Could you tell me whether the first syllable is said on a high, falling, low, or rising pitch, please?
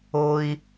low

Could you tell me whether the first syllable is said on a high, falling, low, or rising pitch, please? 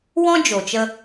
high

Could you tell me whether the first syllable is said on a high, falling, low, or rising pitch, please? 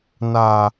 low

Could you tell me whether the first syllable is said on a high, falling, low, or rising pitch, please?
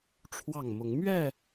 falling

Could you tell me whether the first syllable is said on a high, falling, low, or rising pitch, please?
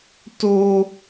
high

